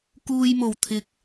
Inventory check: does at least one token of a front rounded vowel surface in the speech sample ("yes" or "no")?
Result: no